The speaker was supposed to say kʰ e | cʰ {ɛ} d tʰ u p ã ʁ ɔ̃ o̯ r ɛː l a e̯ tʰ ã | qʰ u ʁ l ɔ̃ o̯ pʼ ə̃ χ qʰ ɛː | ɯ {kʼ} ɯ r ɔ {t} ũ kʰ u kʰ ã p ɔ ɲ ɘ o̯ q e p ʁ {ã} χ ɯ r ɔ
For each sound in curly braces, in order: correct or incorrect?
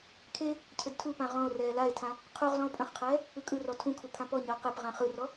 incorrect: ɘ, correct, incorrect: tʰ, correct

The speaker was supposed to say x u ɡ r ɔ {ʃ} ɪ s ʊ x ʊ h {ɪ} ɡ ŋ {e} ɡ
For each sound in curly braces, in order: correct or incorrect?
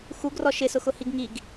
correct, incorrect: i, incorrect: i

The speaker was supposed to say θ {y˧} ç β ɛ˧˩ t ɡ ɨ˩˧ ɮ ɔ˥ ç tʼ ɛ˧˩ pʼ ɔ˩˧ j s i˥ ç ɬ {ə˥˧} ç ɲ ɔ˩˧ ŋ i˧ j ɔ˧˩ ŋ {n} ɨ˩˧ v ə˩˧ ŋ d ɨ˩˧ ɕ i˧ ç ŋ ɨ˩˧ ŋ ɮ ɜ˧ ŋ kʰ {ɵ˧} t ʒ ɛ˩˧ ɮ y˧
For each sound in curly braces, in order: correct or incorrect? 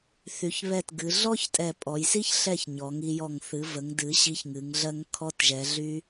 incorrect: y˩˧, incorrect: ɛ˥˧, incorrect: θ, incorrect: ɔ˧

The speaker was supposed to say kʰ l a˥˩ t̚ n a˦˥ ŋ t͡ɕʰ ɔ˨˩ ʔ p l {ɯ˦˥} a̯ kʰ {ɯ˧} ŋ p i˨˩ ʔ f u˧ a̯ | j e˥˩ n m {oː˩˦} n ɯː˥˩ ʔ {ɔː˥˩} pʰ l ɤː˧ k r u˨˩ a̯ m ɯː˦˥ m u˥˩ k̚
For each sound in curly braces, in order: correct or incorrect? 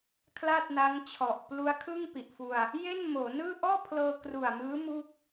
incorrect: u˦˥, incorrect: ɯ˥˩, correct, correct

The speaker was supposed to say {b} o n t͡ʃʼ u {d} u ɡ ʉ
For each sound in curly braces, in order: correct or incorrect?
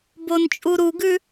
correct, incorrect: ɾ

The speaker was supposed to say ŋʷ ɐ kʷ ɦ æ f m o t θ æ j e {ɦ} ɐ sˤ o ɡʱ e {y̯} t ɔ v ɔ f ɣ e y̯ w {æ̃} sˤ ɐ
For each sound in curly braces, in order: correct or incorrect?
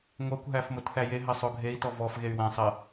correct, incorrect: i̯, correct

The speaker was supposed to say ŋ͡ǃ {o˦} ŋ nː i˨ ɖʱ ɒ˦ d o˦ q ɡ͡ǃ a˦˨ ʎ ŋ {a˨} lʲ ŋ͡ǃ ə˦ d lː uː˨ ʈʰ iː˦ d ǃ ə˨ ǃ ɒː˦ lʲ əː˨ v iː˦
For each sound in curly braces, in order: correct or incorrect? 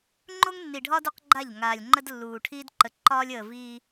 correct, incorrect: aː˨

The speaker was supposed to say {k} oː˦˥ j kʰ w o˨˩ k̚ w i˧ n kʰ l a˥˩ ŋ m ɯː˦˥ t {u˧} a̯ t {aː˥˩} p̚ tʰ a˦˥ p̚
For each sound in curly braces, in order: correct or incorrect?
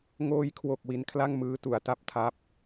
incorrect: ŋ, incorrect: u˩˦, incorrect: a˥˩

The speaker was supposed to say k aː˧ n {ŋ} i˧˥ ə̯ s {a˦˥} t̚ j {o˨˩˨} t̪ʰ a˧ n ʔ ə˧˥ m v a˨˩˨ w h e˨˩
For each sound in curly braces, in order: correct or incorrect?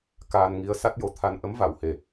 correct, correct, incorrect: o˨˩

